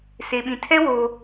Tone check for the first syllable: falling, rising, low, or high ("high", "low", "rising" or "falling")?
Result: low